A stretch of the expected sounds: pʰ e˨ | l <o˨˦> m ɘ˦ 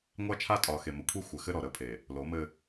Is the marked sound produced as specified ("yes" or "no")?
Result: yes